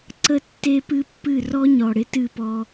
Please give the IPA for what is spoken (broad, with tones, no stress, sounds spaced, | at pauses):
ǀ ə˦ tː e˦ p ɨ˦ pː ɨ˦˨ r ɔ˦ ɲ ɔ˨ ɽ ɪ˦ t ɨ˦˨ p ɔ˦